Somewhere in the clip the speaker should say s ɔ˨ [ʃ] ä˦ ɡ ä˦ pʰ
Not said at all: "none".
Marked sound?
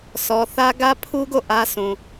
θ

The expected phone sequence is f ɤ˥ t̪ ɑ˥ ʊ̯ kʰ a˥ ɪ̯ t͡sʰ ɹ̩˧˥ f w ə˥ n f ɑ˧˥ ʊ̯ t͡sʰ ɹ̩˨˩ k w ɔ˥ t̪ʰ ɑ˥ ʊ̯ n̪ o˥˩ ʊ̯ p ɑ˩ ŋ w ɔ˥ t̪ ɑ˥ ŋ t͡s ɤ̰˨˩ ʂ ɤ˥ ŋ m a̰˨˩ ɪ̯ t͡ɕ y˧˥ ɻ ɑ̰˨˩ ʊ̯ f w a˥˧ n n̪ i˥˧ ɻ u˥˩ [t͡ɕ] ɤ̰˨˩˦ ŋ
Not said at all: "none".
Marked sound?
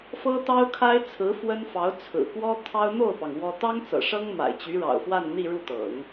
t̪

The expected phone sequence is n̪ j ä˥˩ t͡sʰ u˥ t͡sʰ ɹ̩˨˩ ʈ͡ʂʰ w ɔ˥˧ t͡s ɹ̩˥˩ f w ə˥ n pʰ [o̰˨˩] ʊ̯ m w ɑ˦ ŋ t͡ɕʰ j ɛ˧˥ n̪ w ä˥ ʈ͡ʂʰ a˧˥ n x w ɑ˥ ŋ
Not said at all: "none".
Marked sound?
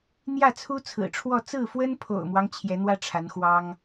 o̰˨˩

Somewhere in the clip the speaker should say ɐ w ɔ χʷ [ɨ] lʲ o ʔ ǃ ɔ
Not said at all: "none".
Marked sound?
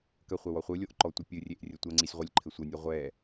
ɨ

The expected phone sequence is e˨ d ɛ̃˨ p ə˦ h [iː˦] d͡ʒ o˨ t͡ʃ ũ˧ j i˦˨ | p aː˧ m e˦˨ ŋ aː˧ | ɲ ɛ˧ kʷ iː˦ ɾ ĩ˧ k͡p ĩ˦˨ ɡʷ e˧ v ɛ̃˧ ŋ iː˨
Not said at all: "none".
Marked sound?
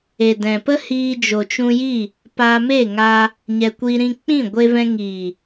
iː˧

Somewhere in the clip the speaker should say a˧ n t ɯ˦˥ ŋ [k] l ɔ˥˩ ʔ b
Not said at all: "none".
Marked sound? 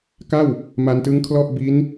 kʰ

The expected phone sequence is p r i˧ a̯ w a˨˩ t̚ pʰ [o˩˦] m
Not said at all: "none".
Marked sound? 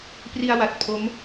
o˦˥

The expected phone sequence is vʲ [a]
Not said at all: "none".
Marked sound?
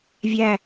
æ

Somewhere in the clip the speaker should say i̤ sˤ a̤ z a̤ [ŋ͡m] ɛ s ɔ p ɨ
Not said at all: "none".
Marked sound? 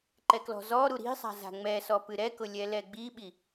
ŋ͡m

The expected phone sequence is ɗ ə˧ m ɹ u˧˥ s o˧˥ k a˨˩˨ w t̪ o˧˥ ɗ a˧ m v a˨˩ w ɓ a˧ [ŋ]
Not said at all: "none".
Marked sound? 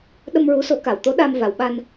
n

